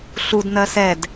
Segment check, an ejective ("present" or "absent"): absent